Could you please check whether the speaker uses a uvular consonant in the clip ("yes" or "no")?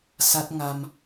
no